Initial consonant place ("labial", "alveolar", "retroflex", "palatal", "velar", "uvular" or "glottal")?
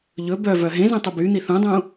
palatal